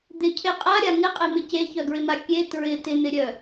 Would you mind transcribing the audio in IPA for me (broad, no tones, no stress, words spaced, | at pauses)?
d̪ɪcʰe qʼaɾʲa ŋɪqʼemɪ ceçœɡɹɪma kʲe tɹɪ tɪn̪ɪɾʲœ